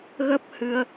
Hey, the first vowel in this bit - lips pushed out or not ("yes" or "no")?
no